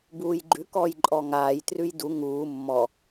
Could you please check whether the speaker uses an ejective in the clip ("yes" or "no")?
yes